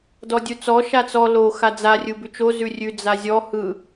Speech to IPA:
dɔdʲut͡sɔ ʃat͡sɔ lo xad͡za rʲɯbʉt͡ʃo zʉrʲʉ d͡zazʲɔ hɯ

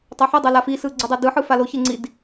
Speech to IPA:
tˤoħɯdˤɛ lafisɯ ɡ͡ǀɯdˤedɯħɯ faloçe ŋ͡ǀid

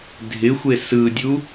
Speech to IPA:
dʱɪxʷe sɯdʲu

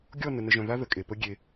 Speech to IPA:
ɡʲɔ˦˨nə˨nə˨ʒœ̃˨ ða˦ ðə˨kʼe˨pə˦ ɡʲe˦

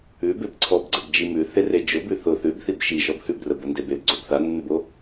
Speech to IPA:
ʉbeb ǀʰɔbɡ͡ǀəbd͡ʒi mʉθere d͡ʒʊ bʉθʊ θʉbθib ʃiʃɔb hʉbrə bəndebeb ɡ͡ǀobθanːʉbo

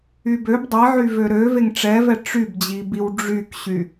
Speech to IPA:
ybøb dˤiʕy vøɾø veŋʈ͡ʂɛvɛ ʈ͡ʂybd͡ʑibiw ɖ͡ʐykɕy

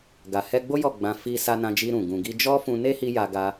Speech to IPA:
ɡa˨hɛ˧ɡ͡bo˦ jɔ˦˨ɡ͡bã˧ fi˧ sa˧nã˧d͡ʒi˧ ɾũ˨ ɡũ˨ɡi˧ d͡ʒɔ˦fũ˧ne˦hi˧ ja˧ɡa˧

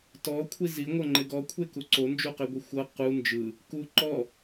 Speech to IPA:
tɔkʷʰi ziŋʷɤŋ͡ǃe ɡɔkʷʰeku ǀond͡ʒuqeɡʷi xʷɤ qu nd͡ʒɯ | ku ǃɔ

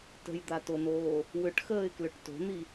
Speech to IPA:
tə̤jd̪atonoː | wʏʈxəːɪ̯klʏʈ to̤n̪i

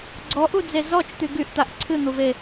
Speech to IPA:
ɡ͡ǀɔʔud͡ze zɔt͡ʃt̪y ɡyʔt̪aʔ ǀʰɨn̪uve

